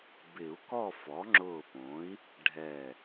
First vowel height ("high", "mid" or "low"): high